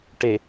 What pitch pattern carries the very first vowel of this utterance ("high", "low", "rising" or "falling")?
low